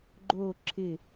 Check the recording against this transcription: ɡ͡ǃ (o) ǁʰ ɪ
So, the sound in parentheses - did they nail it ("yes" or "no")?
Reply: yes